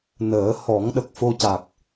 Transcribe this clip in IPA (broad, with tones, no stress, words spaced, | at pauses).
nəː˨˩˦ hɔ˨˩˦ŋ ɗə˨˩k̚fo˧ca˨˩k̚